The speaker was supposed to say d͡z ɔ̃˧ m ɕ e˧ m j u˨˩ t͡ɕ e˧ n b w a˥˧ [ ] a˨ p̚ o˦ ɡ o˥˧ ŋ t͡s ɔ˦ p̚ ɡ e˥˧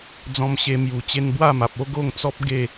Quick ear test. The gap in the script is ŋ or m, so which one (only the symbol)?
m